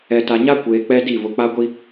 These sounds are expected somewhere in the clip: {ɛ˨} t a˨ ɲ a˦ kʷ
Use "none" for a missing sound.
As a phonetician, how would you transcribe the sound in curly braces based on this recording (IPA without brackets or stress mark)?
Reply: ɛ˨